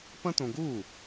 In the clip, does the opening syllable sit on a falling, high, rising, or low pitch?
high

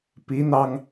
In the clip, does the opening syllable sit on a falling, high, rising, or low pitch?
rising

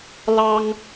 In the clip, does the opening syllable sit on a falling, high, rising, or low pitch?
high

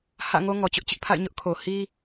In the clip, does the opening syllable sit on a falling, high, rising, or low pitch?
falling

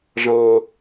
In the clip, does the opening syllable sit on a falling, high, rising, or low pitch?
high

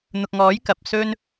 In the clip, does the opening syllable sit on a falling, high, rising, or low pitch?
low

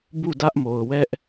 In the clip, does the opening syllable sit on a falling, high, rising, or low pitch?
falling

